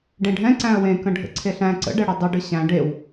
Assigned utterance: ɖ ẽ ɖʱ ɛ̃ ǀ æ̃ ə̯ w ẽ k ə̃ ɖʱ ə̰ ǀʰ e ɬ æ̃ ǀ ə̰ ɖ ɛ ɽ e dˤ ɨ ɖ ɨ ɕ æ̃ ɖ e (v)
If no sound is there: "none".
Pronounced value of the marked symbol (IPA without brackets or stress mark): w